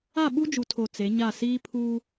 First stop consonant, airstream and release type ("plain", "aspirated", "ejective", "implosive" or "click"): implosive